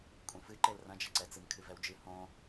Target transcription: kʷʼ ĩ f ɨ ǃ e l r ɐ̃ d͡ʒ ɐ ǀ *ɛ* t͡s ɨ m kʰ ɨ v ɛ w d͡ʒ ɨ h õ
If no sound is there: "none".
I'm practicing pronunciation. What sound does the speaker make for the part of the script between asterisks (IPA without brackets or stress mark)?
ɛ